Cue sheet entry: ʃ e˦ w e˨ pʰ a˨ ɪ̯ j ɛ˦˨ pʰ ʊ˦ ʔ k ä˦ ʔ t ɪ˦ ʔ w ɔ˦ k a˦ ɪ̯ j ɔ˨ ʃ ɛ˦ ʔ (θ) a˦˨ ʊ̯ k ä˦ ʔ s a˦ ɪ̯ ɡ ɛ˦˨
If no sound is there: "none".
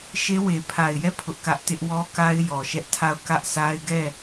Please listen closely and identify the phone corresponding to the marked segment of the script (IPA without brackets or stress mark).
tʰ